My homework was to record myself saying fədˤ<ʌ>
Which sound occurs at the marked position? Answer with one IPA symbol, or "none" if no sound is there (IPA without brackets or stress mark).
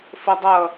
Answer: ʌ